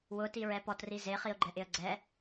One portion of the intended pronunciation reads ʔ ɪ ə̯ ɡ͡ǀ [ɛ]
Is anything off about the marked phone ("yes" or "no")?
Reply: no